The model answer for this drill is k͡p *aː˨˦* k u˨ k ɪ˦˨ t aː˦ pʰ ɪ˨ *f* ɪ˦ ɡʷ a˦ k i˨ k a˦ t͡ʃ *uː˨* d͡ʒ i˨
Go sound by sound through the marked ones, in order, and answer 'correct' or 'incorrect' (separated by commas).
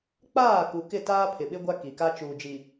incorrect, incorrect, correct